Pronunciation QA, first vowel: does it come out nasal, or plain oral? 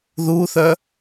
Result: oral